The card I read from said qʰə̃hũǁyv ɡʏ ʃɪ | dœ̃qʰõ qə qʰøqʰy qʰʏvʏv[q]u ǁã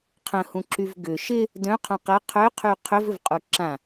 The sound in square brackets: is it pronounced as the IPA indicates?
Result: no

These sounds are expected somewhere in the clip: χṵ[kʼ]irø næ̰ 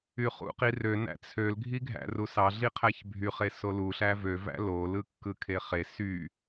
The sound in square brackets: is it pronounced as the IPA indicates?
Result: no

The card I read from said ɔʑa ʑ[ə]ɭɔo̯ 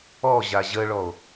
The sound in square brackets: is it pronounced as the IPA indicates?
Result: yes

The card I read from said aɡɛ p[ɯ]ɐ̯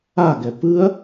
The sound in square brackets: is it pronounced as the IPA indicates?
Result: yes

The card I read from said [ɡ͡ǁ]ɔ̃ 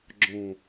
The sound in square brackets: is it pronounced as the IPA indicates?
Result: yes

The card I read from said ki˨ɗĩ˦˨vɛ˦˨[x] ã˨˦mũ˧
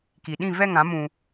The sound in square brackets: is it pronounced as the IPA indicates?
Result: no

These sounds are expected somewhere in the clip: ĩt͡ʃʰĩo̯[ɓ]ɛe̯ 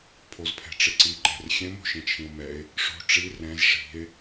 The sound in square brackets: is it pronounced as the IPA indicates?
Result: no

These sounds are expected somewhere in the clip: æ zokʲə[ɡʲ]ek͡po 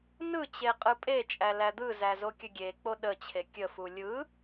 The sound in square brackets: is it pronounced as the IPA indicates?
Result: yes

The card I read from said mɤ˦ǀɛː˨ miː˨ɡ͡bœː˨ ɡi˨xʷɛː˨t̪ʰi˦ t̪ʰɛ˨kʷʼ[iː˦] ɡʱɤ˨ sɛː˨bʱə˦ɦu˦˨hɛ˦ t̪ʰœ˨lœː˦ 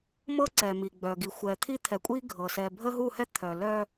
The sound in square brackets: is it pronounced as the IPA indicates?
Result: yes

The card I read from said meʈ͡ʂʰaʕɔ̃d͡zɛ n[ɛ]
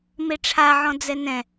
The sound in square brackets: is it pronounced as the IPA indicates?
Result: no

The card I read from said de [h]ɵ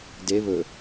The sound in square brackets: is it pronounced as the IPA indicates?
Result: no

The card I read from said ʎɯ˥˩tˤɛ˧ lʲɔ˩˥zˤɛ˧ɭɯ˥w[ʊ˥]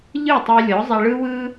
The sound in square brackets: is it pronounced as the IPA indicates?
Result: no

